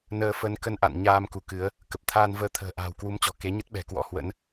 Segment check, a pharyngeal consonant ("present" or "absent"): absent